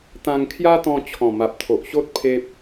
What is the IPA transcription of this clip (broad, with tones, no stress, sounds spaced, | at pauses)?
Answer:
t̪ ã˧ ŋ kʰ j a˦ t̪ ɔ̃˧ t͡ɕʰ ɔ̃˨˩ m a˨ p̚ t̪ʰ o˨ ʔ ɕ o˦ t̚ pʰ e˦ p̚